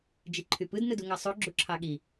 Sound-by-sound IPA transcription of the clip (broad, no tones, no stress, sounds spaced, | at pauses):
d͡ʒ i ǃʰ y p ɯ d n ɯ d u ŋ ɑ sˤ o ɡ͡ǁ u ǁʰ ɑ ɠ i